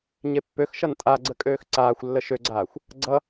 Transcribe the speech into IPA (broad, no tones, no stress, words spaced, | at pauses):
ɲepːøxʃʌn tʼaɡ͡ǀə kʼøːxǀaːxʷlːə ʃøɡ͡ǀaːxʷ | ɡ͡ǀʌ